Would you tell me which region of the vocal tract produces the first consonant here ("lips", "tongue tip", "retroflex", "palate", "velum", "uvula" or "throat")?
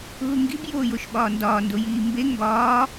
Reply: throat